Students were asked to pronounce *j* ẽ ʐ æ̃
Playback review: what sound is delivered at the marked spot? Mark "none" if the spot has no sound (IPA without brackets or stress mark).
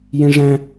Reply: j